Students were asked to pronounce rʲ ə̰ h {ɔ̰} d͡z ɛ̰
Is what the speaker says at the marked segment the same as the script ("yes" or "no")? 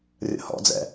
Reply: yes